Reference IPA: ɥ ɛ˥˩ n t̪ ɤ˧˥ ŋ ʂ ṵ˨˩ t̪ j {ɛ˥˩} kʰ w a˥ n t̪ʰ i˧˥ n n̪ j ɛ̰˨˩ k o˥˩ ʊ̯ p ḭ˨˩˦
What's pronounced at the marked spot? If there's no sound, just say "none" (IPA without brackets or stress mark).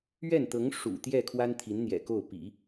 ɛ˥˩